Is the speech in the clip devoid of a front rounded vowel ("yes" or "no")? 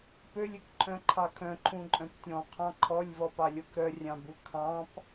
no